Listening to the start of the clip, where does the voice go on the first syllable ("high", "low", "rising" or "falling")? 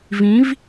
rising